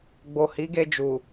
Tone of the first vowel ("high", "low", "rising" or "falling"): low